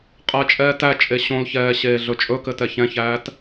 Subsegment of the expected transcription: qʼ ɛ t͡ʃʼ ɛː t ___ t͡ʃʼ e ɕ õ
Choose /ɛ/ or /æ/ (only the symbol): æ